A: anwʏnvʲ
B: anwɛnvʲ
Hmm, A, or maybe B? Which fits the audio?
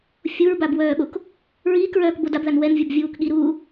B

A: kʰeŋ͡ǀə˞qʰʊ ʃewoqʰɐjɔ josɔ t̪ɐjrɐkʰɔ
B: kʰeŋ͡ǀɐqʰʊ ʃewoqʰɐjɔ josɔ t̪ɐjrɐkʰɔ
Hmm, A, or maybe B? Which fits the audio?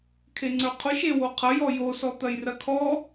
A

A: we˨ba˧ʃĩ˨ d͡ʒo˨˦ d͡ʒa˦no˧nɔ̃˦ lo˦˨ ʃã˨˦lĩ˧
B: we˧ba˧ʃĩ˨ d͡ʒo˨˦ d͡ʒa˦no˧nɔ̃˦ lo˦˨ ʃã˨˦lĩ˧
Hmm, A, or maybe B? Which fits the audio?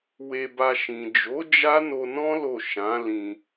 B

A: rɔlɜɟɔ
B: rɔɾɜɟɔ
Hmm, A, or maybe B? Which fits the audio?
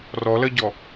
A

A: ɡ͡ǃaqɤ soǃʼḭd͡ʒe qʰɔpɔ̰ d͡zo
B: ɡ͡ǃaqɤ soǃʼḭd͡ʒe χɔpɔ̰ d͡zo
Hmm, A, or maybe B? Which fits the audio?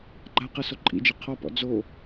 A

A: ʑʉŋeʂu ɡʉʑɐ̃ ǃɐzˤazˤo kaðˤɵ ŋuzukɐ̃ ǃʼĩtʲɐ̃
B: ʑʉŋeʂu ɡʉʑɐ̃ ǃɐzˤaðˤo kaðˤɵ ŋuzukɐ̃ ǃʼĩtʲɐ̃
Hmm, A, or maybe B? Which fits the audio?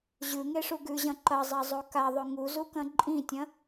A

